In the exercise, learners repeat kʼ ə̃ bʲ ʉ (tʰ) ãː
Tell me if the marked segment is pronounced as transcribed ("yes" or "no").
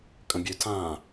yes